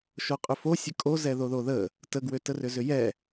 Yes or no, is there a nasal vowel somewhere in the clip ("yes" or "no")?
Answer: no